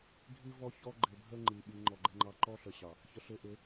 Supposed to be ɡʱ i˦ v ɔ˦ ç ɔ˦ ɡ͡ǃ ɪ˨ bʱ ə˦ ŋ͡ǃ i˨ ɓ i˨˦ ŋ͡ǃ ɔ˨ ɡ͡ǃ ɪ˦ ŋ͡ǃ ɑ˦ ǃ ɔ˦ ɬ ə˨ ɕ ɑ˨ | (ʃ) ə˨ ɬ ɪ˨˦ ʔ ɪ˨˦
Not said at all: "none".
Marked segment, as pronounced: ç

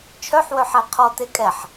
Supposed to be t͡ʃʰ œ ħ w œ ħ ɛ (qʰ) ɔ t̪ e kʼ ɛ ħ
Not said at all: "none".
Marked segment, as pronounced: qʰ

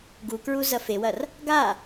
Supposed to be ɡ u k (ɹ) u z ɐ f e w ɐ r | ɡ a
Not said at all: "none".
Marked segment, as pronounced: ɹ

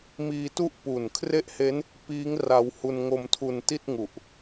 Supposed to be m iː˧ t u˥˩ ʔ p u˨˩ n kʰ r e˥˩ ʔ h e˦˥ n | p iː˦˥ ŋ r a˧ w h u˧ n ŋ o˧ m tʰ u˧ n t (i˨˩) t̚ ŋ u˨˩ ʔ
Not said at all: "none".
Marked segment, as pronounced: i˥˩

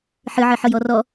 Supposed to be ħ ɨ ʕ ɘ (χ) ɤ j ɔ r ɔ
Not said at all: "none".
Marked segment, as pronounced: ħ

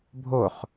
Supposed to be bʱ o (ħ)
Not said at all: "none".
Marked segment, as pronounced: χ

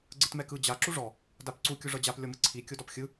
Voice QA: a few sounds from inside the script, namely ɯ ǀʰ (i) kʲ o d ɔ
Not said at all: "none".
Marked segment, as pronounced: i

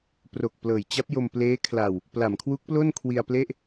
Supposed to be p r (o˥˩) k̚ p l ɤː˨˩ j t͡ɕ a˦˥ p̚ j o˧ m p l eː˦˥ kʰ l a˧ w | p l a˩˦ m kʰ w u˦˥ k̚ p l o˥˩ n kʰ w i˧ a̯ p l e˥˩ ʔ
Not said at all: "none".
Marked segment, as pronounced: o˨˩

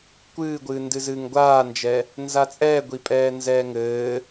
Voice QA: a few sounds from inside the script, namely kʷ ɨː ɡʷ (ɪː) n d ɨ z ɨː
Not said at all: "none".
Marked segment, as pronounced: ɨː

